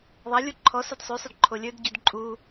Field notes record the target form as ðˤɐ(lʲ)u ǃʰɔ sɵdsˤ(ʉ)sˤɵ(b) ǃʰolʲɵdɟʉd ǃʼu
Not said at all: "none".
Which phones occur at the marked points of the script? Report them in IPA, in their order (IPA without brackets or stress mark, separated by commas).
lʲ, ʉ, d